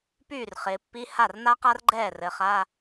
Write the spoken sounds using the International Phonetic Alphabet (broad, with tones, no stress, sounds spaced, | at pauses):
p yː˥˩ r χ ɪː˩˧ pː i˧˥˧ h a˥˩ r n a˥ q a˥ r ɡ͡ǃ ɛː˥˩ r ɘ˩˧ χ a˧˥˧